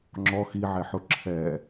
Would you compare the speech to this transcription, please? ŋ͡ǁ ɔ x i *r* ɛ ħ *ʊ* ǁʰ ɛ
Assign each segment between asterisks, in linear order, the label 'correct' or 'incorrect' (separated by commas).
incorrect, correct